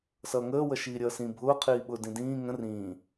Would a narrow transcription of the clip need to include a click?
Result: no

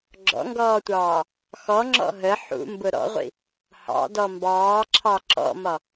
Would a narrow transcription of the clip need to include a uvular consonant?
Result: yes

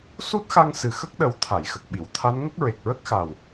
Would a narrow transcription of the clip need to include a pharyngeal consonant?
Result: no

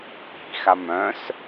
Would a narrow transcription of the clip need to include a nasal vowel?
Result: yes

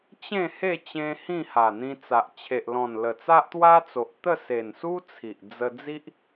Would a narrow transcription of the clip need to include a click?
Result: no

